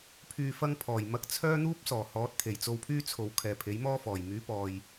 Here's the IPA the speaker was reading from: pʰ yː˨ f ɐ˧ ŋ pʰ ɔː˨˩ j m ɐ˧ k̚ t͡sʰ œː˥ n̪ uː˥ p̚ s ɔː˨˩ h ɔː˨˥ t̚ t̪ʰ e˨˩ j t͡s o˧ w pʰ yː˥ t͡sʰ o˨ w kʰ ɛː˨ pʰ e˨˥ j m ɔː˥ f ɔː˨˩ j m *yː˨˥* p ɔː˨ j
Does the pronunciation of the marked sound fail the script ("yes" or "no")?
no